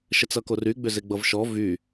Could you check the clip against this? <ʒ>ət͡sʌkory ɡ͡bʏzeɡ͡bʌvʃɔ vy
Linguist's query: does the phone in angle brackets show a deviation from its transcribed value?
yes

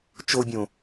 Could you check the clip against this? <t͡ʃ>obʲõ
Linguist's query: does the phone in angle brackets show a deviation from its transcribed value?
no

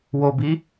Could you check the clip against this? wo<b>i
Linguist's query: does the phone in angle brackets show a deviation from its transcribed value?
no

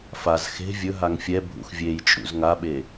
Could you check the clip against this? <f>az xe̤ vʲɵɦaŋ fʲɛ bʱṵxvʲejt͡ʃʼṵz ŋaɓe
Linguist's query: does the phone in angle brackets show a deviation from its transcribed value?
no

